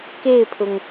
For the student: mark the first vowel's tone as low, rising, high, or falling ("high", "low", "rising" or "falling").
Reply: falling